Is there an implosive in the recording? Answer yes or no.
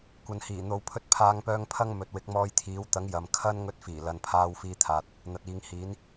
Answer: no